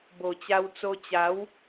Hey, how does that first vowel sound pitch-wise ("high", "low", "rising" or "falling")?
low